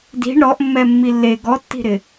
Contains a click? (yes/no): no